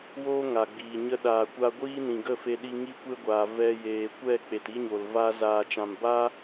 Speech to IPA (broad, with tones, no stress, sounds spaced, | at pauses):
w o˦ ŋ a˨ ɡ͡b iː˨ ɲ ə˦ ɗ aː˨ kʷ a˧ ɡʷ iː˦ n ĩ˨ ɡ ə˦˨ f e˧ ɗ i˧ ŋ i˦ kʷ e˦ ɡʷ aː˨ v ɛ˧ j eː˨ kʷ ɛ˦˨ k͡p e˨ t i˦ ɲ o˨ l v a˦ z aː˨ t͡ʃ ã˨ m b a˦